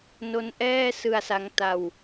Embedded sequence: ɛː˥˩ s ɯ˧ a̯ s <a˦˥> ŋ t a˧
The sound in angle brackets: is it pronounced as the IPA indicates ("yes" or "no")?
yes